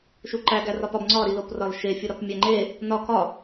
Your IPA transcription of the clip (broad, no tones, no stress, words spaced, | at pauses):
ʃuǃæ ɡærɒpɒb ŋ͡ǀɒ ɾiloprɒlʃe fʲuɾɒpmʲæŋ͡ǃe | nɒ kɒ